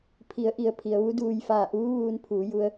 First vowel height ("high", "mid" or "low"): high